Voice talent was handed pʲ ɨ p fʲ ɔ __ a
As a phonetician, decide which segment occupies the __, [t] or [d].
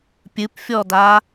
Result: d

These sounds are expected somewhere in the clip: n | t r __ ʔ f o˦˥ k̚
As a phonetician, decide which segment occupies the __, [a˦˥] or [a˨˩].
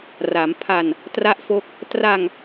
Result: a˦˥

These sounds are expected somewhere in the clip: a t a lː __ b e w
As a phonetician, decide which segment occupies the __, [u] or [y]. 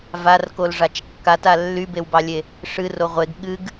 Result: y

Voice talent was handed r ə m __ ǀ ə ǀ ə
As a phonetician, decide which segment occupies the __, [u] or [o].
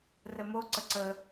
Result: o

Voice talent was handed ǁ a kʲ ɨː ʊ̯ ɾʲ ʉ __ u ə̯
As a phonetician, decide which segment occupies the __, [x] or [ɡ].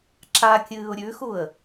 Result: x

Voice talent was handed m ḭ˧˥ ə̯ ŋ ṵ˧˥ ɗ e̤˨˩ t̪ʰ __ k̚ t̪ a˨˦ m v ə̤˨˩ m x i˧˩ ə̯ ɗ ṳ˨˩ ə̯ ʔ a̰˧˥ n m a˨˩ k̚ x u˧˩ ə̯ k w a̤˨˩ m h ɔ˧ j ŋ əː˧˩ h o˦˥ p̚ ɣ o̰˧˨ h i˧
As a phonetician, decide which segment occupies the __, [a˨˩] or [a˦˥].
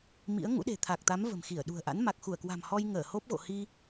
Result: a˨˩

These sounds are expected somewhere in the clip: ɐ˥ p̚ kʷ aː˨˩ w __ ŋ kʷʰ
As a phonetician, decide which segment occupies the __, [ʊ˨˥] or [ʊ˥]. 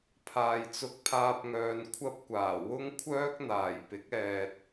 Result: ʊ˥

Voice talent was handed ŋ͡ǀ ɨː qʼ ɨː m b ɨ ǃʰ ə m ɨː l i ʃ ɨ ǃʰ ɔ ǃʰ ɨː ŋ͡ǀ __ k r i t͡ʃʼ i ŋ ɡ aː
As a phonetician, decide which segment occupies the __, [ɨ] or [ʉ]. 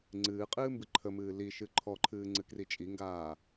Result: ɨ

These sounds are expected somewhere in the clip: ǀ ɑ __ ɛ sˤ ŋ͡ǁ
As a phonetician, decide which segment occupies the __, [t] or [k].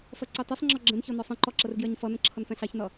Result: t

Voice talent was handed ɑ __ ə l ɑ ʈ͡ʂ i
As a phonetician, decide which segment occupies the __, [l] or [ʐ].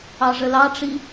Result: ʐ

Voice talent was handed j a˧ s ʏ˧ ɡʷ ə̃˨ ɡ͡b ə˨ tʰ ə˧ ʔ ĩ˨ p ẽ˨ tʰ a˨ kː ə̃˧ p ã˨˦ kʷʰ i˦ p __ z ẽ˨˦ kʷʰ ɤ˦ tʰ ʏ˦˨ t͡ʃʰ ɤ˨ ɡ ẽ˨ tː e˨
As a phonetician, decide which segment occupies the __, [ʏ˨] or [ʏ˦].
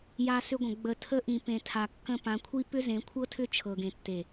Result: ʏ˦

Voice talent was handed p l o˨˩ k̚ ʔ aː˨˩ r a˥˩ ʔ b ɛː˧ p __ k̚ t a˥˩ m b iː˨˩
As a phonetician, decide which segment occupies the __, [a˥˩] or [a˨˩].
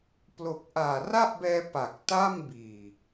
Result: a˨˩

